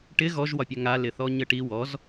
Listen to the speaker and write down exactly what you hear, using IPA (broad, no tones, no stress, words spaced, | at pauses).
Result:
ʈɪ ɣɔʒwɒpʲa ŋalɪθɔ ɲəʈi wɔz